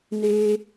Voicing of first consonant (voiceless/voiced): voiced